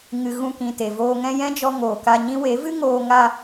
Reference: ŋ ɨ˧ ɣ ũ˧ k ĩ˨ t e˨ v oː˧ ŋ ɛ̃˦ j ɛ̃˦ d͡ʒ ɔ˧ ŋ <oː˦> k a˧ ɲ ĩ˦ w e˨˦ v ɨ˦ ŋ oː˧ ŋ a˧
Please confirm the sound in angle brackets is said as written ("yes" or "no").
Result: no